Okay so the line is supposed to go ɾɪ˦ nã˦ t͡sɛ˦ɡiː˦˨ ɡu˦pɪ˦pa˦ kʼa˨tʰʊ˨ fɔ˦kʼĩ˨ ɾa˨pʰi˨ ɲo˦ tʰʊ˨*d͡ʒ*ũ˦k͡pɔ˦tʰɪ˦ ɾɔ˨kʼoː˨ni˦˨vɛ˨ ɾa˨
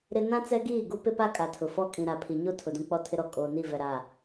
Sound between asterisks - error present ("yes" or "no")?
yes